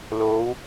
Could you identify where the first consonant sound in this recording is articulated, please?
alveolar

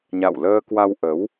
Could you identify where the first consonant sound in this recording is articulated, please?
palatal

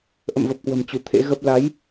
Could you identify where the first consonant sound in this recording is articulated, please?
glottal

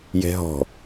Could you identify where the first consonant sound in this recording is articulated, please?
palatal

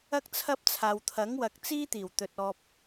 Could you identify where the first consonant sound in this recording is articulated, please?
velar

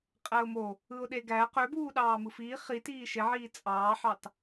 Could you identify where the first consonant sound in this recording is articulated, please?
uvular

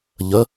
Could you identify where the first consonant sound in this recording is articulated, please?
palatal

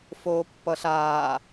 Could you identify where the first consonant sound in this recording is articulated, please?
labial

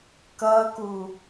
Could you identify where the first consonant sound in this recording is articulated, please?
velar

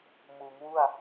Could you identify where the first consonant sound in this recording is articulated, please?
labial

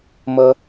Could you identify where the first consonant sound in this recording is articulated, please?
labial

